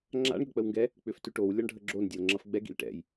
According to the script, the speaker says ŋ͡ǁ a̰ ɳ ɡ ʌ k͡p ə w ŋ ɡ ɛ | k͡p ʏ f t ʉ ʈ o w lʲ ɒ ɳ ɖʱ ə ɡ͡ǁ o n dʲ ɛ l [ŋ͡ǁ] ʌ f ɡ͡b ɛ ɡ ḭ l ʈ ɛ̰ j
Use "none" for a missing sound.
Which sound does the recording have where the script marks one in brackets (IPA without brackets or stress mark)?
ŋ͡ǁ